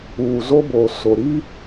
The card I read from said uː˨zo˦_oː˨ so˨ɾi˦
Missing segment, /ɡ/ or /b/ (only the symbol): b